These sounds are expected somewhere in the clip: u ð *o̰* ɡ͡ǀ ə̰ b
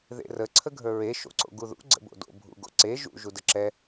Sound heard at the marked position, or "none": ṵ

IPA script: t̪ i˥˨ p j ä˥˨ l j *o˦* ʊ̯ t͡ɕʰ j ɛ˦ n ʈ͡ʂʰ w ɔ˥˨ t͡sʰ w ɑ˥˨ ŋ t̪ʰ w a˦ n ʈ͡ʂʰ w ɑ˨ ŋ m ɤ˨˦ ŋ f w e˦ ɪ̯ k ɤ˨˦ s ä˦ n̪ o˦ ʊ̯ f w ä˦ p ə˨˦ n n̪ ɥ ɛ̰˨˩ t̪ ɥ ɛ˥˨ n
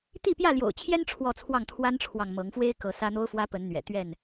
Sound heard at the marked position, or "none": o̰˨˩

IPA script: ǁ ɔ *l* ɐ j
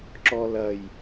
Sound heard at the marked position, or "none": l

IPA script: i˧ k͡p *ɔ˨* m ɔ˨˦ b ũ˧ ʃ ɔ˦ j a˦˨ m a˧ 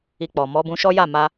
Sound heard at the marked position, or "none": ɔ˨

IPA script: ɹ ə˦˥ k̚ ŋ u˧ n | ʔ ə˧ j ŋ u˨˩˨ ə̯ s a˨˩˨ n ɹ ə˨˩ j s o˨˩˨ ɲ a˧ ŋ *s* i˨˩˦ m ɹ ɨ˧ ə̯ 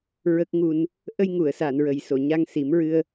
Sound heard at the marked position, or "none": s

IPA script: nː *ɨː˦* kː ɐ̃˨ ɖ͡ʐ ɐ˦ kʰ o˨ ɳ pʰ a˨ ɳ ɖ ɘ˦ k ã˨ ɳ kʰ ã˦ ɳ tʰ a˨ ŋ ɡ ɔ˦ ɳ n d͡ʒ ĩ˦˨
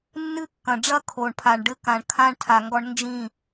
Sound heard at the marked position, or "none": ɨ˦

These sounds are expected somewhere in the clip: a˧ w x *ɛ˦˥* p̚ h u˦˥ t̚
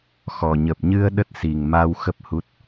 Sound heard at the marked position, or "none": ə˦˥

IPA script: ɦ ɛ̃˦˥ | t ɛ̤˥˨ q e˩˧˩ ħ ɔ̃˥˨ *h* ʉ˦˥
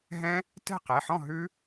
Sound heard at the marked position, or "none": ɦ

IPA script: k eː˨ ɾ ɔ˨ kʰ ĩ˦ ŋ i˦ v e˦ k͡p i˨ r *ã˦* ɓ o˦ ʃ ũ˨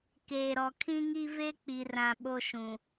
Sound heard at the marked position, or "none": ã˨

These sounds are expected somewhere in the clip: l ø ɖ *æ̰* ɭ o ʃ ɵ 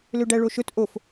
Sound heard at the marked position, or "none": æ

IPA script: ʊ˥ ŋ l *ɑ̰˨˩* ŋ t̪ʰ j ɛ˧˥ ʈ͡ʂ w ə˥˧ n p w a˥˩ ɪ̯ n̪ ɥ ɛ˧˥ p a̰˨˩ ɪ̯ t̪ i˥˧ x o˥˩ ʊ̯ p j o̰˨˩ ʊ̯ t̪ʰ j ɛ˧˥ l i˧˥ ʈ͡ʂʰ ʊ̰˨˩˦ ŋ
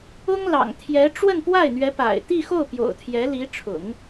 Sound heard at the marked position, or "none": ɑ̰˨˩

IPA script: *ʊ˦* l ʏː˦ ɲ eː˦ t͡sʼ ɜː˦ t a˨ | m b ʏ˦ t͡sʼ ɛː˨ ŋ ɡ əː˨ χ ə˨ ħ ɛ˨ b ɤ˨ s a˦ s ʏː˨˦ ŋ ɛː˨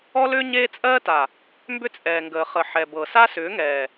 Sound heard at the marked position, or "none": ɔ˦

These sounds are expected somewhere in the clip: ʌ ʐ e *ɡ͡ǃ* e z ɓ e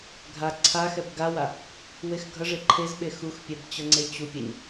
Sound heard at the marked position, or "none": ǃʰ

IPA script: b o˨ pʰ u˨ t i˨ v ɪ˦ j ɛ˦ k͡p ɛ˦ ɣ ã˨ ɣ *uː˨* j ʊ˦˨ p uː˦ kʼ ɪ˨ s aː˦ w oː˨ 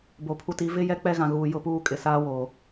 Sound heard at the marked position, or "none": uː˨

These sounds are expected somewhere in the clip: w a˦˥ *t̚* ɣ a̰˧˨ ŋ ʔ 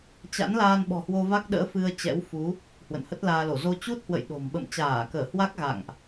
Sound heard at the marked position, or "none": k̚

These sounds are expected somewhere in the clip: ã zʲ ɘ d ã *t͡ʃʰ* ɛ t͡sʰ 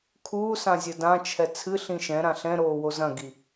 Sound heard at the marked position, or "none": t͡ʃʰ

